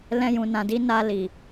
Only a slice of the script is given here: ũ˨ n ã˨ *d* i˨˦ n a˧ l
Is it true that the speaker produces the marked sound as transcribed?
yes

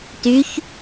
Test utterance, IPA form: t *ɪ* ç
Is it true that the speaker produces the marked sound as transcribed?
no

